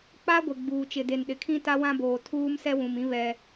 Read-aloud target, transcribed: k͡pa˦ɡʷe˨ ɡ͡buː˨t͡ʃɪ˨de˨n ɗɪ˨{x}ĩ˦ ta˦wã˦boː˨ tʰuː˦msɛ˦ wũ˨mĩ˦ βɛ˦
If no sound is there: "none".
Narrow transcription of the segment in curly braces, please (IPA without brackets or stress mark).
kʰ